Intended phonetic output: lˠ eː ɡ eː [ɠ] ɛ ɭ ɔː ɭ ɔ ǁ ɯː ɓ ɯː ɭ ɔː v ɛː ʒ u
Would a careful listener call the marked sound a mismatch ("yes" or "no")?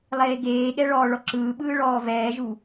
no